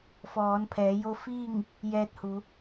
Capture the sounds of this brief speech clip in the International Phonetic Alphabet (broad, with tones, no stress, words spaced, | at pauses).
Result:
fɔː˩˧n pʰɛː˩˧ jo˧ fiː˥˨ŋ | jɛː˧t̚hu˩˧